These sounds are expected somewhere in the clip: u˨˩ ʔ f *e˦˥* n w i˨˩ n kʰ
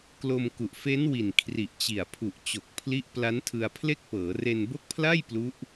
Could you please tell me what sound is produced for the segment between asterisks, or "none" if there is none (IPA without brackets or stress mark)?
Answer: e˦˥